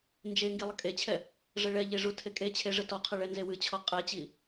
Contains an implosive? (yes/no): no